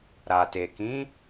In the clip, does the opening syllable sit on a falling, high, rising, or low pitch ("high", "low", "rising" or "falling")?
low